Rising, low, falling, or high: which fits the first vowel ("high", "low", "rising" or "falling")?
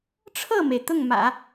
falling